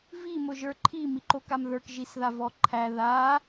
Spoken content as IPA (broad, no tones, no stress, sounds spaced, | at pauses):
v i m ʊ ʒ ə˞ ǃʰ i m i ǃ o k a m ð ə˞ k ʒ i s ð a v ɔ ǃʰ æ ð a